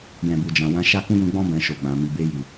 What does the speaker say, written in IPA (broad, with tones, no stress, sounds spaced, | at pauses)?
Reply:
j ɛ̃˨ b u˨ d͡ʒ ã˨ w ã˧ ʃ a˦ k ũ˦ j ũ˧ ɡ͡b ɔ̃˦ b ɛ̃˧ ʃ o˨ ɡ͡b ã˨ m i˨ b e˧ j i˨